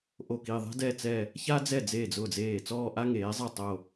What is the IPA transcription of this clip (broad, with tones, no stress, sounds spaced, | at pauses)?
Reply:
ʔ o˥˩ k i˥˧ ðˤ ɛ̤˥ d ɛ˥˧ t͡s ɛ˥˧ | ç a˥ d͡z ɛ˥˩ d͡z eː˥˩ d͡z ʊː˥˩ d͡z eː˥˩ t͡s ɔː˥˧ ʔ a˥ ŋ eː˨˥ zˤ ɛ˥˩ tˤ o˥˧